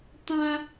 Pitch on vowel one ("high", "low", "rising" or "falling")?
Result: high